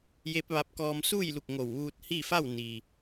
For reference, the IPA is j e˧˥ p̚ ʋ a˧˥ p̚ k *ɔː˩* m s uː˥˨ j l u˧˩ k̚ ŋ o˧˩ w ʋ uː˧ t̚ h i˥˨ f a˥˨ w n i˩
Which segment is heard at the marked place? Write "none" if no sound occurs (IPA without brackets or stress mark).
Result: ɔː˧